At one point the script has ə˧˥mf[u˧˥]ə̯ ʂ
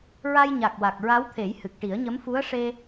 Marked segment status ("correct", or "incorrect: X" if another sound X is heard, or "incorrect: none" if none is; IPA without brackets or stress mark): correct